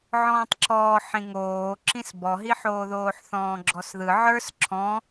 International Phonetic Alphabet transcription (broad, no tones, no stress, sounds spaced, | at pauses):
ʕ ɔ̃ː tˤ ǁ ɔː ħ ĩ ŋ oː ǁ ĩ s b ɔ ɦ i ħ oː ð oː ħ θ ɔ̃ː ɡ͡ǁ ɔ s ð ɯ ʕ ə˞ s ǁʰ ɔ̃